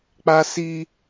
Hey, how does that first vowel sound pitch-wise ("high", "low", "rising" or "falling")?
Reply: high